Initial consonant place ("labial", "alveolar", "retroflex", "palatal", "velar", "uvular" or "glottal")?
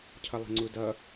palatal